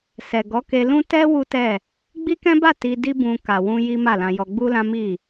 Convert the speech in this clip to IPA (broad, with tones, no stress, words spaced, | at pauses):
sɛ˨ɡɔ˨˦ke˧lũ˦ tɛ˦ wu˦tɛ˦˨ | ɡ͡bi˦kɛ̃˦ba˦˨ ti˧di˦bũ˧ ka˨wũ˧ ji˦ma˦˨lã˧jɔ˧ ɡ͡bu˦lã˦mi˦˨